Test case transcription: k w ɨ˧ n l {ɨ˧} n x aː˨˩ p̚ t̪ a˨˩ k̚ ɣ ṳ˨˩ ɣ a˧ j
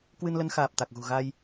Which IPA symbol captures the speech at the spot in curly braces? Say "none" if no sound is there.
ə˧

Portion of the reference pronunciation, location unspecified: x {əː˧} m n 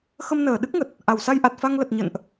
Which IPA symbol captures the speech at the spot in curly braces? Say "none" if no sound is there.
ə˧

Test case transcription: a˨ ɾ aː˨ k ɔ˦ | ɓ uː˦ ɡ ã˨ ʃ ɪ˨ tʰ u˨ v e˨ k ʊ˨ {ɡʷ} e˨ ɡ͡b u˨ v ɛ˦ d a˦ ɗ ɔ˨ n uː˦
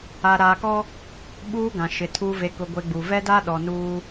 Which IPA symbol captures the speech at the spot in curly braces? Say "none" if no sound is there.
ɡʷ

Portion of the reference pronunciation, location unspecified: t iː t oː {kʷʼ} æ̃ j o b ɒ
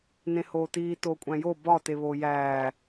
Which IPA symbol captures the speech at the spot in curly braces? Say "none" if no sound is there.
kʷʼ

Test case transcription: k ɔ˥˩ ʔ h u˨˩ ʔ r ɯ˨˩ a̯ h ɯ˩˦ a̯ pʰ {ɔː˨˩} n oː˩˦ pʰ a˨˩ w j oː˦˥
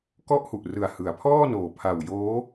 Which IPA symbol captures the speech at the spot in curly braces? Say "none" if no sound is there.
ɔː˥˩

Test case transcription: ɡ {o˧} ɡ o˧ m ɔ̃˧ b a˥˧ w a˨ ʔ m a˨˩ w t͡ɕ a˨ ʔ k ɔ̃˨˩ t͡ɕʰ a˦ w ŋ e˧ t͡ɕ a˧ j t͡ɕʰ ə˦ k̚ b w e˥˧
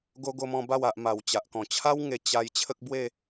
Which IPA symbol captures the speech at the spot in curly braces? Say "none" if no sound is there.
o˧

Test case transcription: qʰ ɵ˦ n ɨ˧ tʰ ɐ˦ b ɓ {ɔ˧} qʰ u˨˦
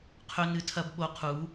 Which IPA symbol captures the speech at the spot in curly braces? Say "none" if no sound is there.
o˧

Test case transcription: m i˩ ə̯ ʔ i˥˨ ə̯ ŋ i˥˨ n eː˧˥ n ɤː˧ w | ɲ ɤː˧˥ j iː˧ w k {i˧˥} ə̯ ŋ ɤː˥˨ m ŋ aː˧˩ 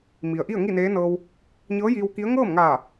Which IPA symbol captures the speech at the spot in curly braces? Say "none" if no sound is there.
i˧˥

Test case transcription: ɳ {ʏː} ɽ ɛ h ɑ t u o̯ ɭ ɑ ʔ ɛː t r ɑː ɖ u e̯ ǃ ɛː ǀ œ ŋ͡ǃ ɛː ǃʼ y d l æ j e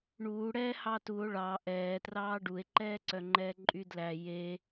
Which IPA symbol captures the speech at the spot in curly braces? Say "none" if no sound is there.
uː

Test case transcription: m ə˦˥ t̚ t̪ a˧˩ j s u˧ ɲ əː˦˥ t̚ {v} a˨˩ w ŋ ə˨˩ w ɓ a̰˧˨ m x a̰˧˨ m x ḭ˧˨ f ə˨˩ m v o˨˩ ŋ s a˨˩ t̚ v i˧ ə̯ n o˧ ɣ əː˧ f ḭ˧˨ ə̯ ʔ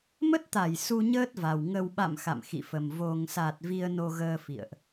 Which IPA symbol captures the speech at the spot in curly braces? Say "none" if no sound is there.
v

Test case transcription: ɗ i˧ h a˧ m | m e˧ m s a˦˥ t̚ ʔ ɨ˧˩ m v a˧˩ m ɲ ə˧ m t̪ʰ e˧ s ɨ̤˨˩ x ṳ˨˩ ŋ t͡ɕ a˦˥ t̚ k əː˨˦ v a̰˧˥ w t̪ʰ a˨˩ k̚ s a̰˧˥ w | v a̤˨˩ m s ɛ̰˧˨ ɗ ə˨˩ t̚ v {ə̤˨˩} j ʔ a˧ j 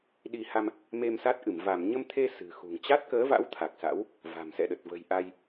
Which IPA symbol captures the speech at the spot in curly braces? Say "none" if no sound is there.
ə̤˨˩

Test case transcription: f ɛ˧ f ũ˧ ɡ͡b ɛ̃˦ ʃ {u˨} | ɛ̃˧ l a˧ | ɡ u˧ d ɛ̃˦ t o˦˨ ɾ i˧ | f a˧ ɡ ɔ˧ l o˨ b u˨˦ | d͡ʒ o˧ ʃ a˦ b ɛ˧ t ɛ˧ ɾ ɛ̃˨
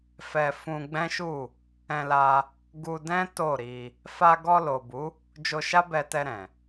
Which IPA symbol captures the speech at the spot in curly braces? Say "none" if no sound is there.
u˦˨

